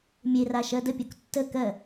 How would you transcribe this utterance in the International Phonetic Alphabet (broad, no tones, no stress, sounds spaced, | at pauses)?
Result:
mʲ e r a ʃ ɜ d ə pʲ o k tː ə k ɜ